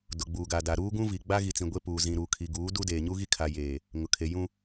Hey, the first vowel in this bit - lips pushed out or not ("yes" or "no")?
yes